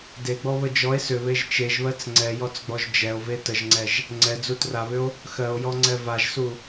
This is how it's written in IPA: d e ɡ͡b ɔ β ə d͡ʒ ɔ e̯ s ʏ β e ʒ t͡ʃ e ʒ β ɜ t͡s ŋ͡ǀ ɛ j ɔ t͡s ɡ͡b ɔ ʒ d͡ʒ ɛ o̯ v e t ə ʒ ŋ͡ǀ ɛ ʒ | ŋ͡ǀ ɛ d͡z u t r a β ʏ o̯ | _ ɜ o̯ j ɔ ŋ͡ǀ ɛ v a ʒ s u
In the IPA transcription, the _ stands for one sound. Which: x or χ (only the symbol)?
x